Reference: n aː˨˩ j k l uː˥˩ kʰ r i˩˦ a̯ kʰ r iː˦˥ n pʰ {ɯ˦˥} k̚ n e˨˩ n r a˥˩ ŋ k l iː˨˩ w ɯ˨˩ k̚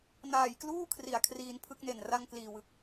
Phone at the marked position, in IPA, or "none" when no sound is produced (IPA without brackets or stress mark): ɯ˦˥